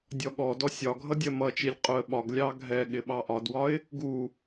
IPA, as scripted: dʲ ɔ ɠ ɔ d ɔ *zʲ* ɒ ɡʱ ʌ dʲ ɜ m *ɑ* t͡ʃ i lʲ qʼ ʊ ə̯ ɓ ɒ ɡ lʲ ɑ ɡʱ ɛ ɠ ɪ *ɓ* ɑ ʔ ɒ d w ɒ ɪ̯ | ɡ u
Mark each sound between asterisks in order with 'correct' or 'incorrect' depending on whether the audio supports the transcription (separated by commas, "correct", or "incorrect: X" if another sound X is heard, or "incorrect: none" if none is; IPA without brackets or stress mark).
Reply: incorrect: sʲ, incorrect: ʌ, correct